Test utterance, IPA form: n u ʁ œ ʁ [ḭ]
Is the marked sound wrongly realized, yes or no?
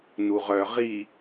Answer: yes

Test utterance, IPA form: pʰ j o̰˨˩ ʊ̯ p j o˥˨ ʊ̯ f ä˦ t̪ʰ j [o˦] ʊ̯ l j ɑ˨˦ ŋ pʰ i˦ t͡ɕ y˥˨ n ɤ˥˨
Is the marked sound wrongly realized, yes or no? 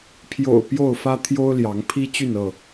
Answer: no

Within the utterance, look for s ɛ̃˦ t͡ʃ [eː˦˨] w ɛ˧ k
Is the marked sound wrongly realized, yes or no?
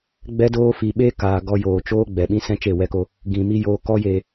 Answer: yes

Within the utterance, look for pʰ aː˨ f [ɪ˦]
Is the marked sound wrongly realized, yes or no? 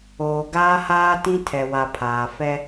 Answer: yes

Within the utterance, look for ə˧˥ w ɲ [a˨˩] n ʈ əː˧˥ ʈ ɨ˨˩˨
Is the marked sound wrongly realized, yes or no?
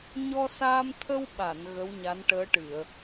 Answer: yes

